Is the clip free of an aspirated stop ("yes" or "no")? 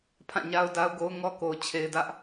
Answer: no